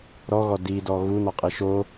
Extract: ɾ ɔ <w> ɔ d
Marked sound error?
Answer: yes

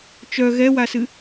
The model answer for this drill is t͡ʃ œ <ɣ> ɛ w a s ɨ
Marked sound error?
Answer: no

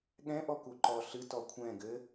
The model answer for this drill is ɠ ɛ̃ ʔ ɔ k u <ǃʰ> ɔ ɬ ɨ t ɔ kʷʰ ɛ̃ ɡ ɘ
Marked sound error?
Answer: yes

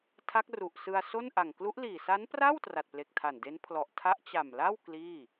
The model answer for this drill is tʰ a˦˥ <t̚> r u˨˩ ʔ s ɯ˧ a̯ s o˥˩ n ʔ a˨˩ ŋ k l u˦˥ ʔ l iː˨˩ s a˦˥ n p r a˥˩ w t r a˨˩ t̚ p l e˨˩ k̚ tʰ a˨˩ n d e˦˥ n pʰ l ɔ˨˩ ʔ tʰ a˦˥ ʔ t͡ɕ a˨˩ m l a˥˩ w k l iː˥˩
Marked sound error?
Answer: yes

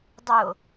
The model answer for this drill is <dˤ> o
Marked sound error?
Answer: no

